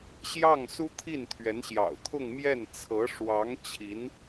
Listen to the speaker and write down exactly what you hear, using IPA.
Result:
ɕ j ɑ˥˩ ŋ s u˥ t̪ʰ i˥˩ n t̪ʰ ɥ ɛ˧˥ n ɕ j ɑ̰˨˩ ʊ̯ t̪ʰ ʊ˥˧ ŋ m j ɛ˥˩ n t͡sʰ ɤ˧˥ ʂ w ɑ˧˥ ŋ t͡ɕʰ i˧˥ n

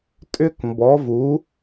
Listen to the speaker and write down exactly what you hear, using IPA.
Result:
tʼ ʏ˥ k m b ɔ˧˥ v u˧˥

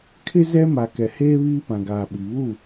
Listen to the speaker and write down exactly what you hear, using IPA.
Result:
kʰ ɪ˦ z ɛ˦ m a˨ k ɛ˨ h eː˦ β iː˦ p ã˨ ɡ aː˨ ɓ i˨ β u˦˨

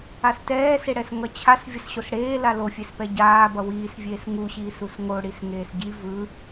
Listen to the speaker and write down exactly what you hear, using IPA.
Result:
a s t ɛː s e ɽ ɛ s ŋ ʌ t͡ɕʰ a s vʲ ʌ s ɕ o s ɽ eː l a l o fʲ e s p ɛ ɟ aː b ʌ w iː s vʲ eː s ŋ u ɕ iː s u s ŋ o ɽ i s ŋ eː s ɟ i v ɯ

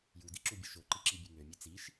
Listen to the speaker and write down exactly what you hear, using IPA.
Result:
j u d i ǁ u bʲ œ ʃ o ǃ i ǁ i bʲ e ŋ ø mʲ ø t͡s i ʃ

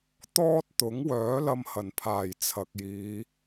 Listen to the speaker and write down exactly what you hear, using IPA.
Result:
t̪ ɔː˥ t̚ t̪ ʊ˨˥ ŋ w œː˨˥ l ɐ˧ m h ɐ˨˩ n pʰ aː˨˩ j t͡sʰ ɐ˨ k̚ j iː˨˧

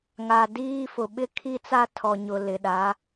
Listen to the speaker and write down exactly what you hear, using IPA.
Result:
ŋ a˨ d iː˦ f ʊ˨ ɓ ɪ˦ kʰ i˦ t͡s a˦ tʰ ɔ˨ ɲ ʊ˨ l ɪ˨ ɗ a˨˦

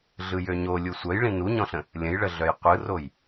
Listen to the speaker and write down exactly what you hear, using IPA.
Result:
ɮ ɯ j ø ɲ o lʲ u sʷ œ j ɭ ĩ n u ɲ ɔ̃ ɬ ə̃ | lʲ ə̃ j ɭ ə ɮ œ j qʷ ɯ r o j

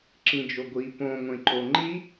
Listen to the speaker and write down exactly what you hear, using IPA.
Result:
ǁ ĩ d͡ʒ o ɡʷ i p õ ŋʷ ẽ ǃ o ŋ͡ǃ i

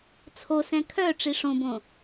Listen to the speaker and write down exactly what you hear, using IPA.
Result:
t͡sʰ o s ɛ̃ kʰ œ ʈ͡ʂ i ʂ õ b õ

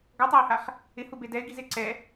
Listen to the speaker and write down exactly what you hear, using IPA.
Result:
ɡ ɔ tˤ a ɪ̯ h a χ | ɪ h u b e d ɛ ɪ̯ ɡ i z e ǀ ɛ

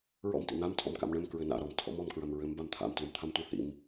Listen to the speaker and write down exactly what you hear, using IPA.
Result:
ɹ ɔ̰ m t ḭ n̪ a m tʰ ɔ̰ m k a̰ m ɳ ɘ m k ɹ ɘ n a̰ ɾ ɔ m tʰ ɔ̰ m ɔ m k ɹ ɐ m ɹ ɘ m b a m t̪ʰ a̰ m t l u m t̪ʰ a m tʷ ɘ θ ḭ m

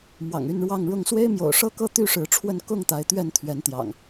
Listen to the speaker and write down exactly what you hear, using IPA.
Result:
m w ɑ̰˨˩ ŋ y˥˨ n ɻ w ɑ˥˨ ŋ ɻ ʊ˥˨ ŋ s w e˦ ɪ̯ m j o̰˨˩ ʊ̯ ʂ ɤ˦ k ɤ˦ t̪ y˦ ʂ ɻ̩˨˦ ʈ͡ʂʰ w ə˥˨ n k ʊ˥˨ ŋ t̪ a˨˦ ɪ̯ t̪ ɥ ɛ˥˨ n t̪ʰ ɥ ɛ˨˦ n t̪ j ɑ̰˨˩ ŋ

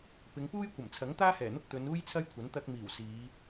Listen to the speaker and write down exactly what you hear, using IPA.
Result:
p ɪ˨˧ ŋ p uː˥ j kʷ ɐ˨˩ m t͡sʰ ɐ˨˥ ŋ t̪ aː˥ h ɛː˨˩ n̪ ʊ˥ k̚ t̪ ɵ˨˧ n uː˥ j t͡sʰ ɐ˥ j kʷʰ ɐ˨˥ n t̪ ɐ˧ k̚ m iː˨˩ w s iː˨˧

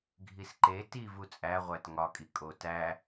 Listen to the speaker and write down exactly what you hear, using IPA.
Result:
ɡʱ i s ǃ e t i v u t͡sʼ æ ʁʷ æ t ŋ ɒ kʼ i kʼ o t æ

